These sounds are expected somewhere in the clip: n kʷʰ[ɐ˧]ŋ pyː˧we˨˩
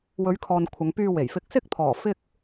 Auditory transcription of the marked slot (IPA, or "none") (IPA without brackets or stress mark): ɐ˨˧